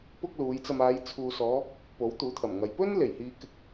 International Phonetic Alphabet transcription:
pʊ˥k̚luː˨˥jt͡sɐ˧m aː˨˧j t͡sʰuː˨sɔː˨˧ | po˨˥wt̪uː˨˥t̪ʰɐ˨˩mŋɐ˨j pɵ˥n le˨˩jhiː˨˧kɪ˨k̚

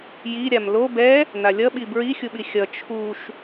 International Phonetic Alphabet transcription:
jiɾʲam lo bɛ | n̪alʲʌɓi bɹixʲuɓi xʲʌ t͡ʃʰuʃ

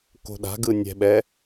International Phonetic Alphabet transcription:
ko̤ɗa̤ɡɯ nʲɛ̤ɓɛ

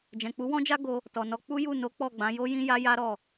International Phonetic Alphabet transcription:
d͡ʒɛ̃˨k͡pu˨˦wɔ̃˦d͡ʒa˦ ɡo˧ | tɔ˨nɔ˧ k͡pu˦ju˦˨ no˨˦ k͡pɔ˦˨ɡ͡bã˨˦ jo˦jĩ˦ja˦ja˦ ɾɔ˦˨

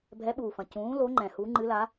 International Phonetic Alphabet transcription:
bʱɛ˩˥ɓuː˩fɐ̃˩ cũː˩˥lo˩˥ ŋ͡ǃɛ̃˩ hu˩˥ŋ͡ǃɨ˩˥la˩˥

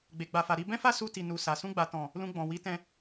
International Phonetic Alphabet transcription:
ɡ͡be˨ɡ͡ba˨fa˨ ɾi˧bɛ̃˦fa˦ su˧ti˨ nu˨sa˨ sũ˧ɡ͡ba˨tɔ̃˨ | lũ˧ɡ͡bɔ̃˨wi˨˦tɛ̃˧

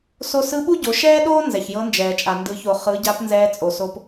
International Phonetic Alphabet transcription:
so˧sɯ˧˥ɓu˥ɟo˩˧ ʃɛː˥ɗoː˥ nzɛ˩çjɤ˧˥nd͡ʒɛː˩t͡ʃʼa˩ ndɯ˩˧ço˩ χɯ˩˧ ɟa˧˥pnzɛː˧t͡sʼo˩so˧p

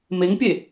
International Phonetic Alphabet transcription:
meŋpʲe

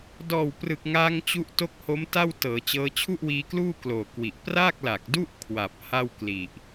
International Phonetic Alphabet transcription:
dɔː˨˩wprɯ˨˩k̚ŋaː˧ŋ t͡ɕu˦˥ʔto˦˥k̚ho˦˥m ta˥˩wtɤː˩˦t͡ɕɤː˦˥ t͡ɕʰu˥˩ʔwiː˧kluː˥˩ kloː˨˩kwi˨˩ʔ pra˥˩k̚la˨˩k̚du˥˩ʔ kʰwa˨˩p̚ ha˥˩wkli˨˩ʔ

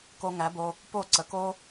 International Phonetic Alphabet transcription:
ko˧ŋæ˨˦bo˧ | po˦˨ ǀə˨ko˦

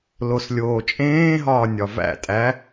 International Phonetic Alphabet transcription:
loslʲoːt͡ʃʼẽːɦɒː nʲɒvæ̰tʼæ

